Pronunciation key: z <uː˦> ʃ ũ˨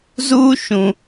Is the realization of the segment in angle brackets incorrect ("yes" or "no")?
no